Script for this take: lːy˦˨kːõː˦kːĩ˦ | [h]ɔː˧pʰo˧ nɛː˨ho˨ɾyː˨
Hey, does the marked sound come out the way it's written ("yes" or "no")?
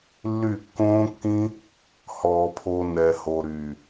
yes